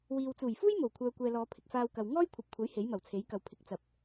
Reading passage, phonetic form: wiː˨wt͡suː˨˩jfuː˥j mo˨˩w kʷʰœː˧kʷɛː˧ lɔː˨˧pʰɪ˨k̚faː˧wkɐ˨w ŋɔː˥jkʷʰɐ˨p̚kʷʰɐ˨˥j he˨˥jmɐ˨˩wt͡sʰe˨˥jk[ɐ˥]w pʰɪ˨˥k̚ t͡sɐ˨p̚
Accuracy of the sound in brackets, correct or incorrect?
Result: incorrect